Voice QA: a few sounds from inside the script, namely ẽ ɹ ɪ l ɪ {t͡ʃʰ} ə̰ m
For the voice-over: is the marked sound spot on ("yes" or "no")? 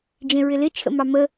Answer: yes